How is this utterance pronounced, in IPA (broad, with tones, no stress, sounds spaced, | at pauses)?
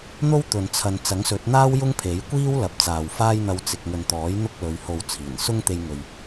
n̪ o˥ w t̪ ɵ˨ n t͡sʰ ɐ˨ n t͡s ɐ˨˥ ŋ s ɵ˨˥ t̚ n̪ aː˥ w j ʊ˥ ŋ pʰ e˨˥ j kʷ iː˥ w l ɐ˨˥ p̚ t͡s aː˨ w f aː˥ j n̪ ɐ˧ w t͡s ɪ˨ k̚ ŋ ɵ˨ n t̪ ɔː˨˥ j n̪ ʊ˥ k̚ l ɵ˨˧ ɥ h o˨ w t͡sʰ iː˨˩ n s ʊ˥ ŋ t̪ e˧ j ŋ ɵ˨ ɥ